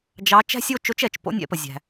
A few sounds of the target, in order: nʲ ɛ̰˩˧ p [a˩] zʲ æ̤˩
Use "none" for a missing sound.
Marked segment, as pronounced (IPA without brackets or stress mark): ə˩